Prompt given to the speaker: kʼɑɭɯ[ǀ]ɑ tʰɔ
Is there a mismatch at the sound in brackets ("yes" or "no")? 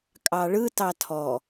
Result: yes